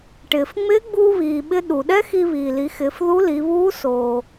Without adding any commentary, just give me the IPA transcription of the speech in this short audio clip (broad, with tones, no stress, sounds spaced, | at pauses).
ʈ ɪː˩ f ŋ͡m ɪː˧˥ ɡ͡b uː˧ β iː˩ ɓ ɪ˧ ɗ u˩ ɗ ɛ˥ x i˧ β iː˩ l i˩˧ x ɪː˩˧ f ð u˧˥ l i˩˧ β uː˧˥ s oː˩